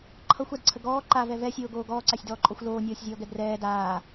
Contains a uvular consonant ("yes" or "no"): no